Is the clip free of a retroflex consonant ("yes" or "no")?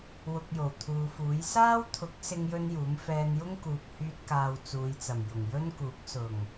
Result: yes